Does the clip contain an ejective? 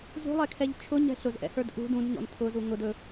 no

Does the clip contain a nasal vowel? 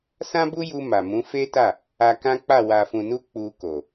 yes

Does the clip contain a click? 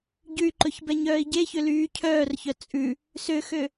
yes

